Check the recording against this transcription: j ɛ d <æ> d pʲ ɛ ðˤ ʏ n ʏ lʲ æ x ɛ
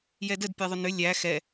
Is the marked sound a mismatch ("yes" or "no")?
yes